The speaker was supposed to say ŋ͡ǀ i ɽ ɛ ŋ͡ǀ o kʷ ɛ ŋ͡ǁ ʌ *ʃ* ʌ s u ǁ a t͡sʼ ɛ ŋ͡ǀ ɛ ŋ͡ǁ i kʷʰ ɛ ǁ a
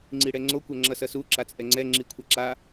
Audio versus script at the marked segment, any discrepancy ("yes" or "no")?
yes